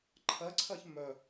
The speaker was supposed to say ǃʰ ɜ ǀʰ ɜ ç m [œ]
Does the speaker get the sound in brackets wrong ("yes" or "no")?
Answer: no